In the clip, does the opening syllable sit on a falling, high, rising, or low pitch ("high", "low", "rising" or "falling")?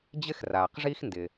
high